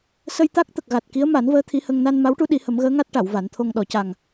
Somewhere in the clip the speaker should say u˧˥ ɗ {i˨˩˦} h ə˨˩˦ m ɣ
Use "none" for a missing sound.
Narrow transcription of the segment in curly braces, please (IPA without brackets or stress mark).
i˨˩˦